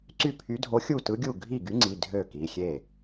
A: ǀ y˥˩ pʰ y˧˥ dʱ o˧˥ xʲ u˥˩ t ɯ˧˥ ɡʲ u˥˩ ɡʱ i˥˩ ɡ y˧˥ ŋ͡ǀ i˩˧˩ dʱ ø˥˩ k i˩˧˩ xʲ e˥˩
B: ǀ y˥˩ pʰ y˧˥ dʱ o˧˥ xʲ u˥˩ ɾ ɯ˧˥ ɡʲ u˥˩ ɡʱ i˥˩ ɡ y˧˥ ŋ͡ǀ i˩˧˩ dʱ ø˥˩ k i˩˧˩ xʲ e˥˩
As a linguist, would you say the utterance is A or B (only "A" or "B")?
A